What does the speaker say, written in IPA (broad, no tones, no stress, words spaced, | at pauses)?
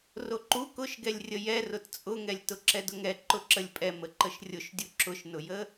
roǃu kʊʃɡɛlʲ rʲəjɛrʊt t͡sʼʊŋɛlʲ tʊǁɛdʊŋɛ ǃʊǁəlʲpʼɛ məǃəʃrʲʊʃdʲu ǁʊʃnʊjə